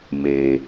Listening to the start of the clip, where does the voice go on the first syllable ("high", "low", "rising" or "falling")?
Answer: low